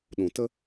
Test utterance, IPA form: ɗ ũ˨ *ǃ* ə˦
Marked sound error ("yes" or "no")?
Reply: yes